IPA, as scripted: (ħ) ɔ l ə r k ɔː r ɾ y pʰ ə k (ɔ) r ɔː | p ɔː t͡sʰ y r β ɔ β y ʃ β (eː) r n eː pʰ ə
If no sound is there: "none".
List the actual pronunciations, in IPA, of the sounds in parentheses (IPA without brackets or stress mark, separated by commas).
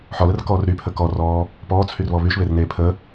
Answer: ħ, ɔ, e